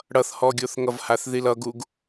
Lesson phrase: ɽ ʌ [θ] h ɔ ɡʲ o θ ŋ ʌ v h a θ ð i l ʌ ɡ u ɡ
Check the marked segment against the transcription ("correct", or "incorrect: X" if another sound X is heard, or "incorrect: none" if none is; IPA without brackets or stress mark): correct